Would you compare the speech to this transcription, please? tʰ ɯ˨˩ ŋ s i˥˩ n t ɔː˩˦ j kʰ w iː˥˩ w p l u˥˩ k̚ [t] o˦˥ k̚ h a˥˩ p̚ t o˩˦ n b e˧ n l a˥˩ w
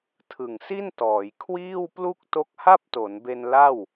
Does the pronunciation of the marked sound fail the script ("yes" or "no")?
no